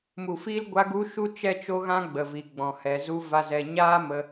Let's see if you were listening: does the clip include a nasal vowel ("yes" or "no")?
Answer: yes